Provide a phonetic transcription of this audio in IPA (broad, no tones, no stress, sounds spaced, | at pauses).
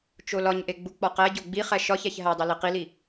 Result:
t͡ʃ o l ɒ ɲ ʔ e ɡ͡b u k͡p ɒ q æ ɟ o ɡ͡b i χ æ ʃ ɒ ç æ ç ɦ æ dˤ i l i q i l i